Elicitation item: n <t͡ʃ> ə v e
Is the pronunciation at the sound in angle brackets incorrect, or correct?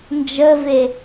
incorrect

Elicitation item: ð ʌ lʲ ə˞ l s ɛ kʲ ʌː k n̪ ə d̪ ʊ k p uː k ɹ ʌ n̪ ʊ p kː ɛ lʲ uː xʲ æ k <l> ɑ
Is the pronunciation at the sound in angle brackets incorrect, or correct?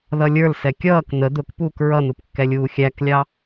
incorrect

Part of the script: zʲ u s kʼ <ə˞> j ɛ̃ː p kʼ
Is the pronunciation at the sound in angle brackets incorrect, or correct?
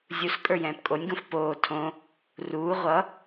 correct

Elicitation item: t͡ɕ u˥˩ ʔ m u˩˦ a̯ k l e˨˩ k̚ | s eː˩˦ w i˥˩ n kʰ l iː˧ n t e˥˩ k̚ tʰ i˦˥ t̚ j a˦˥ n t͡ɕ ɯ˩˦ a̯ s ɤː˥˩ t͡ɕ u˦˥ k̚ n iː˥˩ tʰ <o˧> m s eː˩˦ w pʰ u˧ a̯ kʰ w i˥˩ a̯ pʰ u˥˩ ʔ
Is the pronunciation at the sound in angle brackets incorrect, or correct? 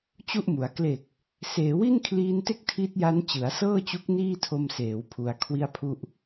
correct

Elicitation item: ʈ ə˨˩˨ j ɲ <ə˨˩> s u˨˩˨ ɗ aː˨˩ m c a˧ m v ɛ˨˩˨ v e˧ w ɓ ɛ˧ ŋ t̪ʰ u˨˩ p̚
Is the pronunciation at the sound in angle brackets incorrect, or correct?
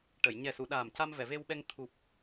incorrect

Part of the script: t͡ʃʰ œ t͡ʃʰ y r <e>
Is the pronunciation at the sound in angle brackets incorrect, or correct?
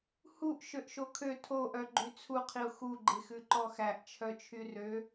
incorrect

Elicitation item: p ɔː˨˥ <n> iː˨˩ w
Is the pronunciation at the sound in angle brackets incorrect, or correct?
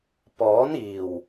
correct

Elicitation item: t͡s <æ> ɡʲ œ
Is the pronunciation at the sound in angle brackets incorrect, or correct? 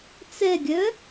incorrect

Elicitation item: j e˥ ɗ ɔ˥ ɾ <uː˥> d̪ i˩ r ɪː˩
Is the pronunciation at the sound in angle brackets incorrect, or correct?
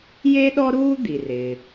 correct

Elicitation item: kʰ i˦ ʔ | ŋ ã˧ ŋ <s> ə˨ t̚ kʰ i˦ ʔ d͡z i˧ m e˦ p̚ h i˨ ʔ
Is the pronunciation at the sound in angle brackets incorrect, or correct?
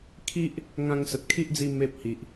correct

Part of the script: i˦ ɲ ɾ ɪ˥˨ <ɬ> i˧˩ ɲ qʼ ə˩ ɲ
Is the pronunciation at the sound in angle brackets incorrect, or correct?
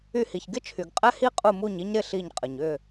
correct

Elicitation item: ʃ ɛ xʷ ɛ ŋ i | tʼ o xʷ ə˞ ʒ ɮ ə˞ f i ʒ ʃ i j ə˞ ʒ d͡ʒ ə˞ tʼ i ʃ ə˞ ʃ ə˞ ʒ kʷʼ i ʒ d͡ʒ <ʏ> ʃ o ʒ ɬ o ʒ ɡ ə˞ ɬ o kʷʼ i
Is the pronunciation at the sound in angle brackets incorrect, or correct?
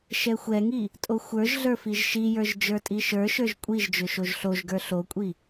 correct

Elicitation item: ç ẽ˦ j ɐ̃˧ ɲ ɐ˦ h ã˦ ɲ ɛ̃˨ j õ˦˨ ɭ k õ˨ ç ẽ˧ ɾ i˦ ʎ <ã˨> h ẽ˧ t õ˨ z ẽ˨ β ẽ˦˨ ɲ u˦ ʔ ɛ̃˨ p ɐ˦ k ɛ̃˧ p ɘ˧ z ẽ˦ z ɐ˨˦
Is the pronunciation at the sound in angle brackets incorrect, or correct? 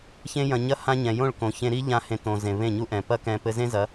incorrect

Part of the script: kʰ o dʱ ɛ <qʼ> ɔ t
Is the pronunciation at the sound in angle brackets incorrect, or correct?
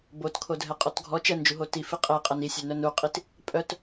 correct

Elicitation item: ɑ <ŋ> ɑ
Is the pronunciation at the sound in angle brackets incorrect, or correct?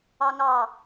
correct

